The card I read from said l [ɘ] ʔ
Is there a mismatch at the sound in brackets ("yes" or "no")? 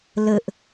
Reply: no